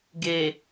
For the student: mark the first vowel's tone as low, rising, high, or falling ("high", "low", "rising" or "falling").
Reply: low